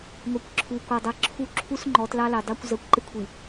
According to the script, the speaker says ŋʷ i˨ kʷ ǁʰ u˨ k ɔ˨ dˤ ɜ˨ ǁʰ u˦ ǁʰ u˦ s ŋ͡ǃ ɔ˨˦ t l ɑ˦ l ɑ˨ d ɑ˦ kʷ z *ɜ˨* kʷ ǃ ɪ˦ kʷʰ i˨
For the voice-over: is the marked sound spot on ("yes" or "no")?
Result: yes